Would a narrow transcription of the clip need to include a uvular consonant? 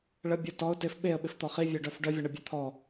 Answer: yes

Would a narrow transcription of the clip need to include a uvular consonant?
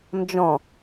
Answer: no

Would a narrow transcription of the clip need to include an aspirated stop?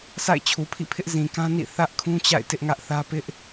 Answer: yes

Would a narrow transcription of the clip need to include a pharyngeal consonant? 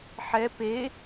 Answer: yes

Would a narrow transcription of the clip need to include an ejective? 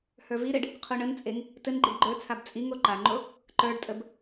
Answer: yes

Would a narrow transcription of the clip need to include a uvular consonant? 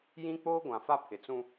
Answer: no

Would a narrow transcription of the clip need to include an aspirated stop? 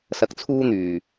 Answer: yes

